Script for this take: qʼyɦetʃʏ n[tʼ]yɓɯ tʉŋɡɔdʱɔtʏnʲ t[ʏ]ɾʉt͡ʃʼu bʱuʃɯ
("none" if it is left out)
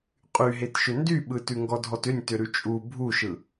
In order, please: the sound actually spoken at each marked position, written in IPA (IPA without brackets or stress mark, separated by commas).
d, ʏ